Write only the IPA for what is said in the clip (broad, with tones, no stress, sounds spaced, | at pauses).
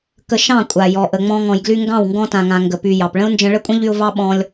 k ə˧ ʃ ɑ̃˦˨ kʷʼ a˨ j ɔ˨ ʔ ə˨ ŋ͡m ɔ̃˧ ŋ ɔ̃˨ j ɡ l y˧ ŋ ɡ ɑ̃˦˨ w ŋ ɡ ɔ̃˧ t ã˨ ŋ ã˨ ŋ ɡ ə˨ p y˨ j ɑ˨ p ɭ ə̃˦ ʊ̯ n d͡ʒ ə̃˧ ɭ ə˦ kʷʼ ə̃˦ ʎ y˧ ʊ̯ v ɑ˦ ɓ ɔ̃˧ lʲ